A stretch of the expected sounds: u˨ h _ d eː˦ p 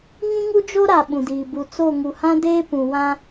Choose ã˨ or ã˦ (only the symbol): ã˦